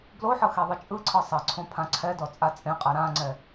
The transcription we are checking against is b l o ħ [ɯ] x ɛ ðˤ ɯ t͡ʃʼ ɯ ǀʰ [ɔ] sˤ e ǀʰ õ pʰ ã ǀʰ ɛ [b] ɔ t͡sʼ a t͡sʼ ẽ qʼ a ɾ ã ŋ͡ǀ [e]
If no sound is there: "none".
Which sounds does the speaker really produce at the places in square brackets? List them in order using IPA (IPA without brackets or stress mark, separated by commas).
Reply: ɤ, ɤ, d, ɛ